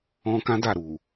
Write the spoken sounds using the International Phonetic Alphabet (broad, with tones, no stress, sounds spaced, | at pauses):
ɔ̃˧ k ã˦ d a˦˨ ɾ u˨